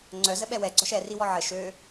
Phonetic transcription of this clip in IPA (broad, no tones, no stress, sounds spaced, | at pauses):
ŋ͡ǀ œ z ə ɓ ɛ w ɛ ɡ͡ǀ ɔ ʃ ɛ r i w ɔ ʕ ə ʃ ø